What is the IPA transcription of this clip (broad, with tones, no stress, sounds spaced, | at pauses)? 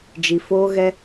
d͡ʒ i˨ f oː˧ ɣ ɛ˧